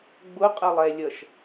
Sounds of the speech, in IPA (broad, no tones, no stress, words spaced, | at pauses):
ɡ͡bʊqʼəlˠɛlʲʌʃ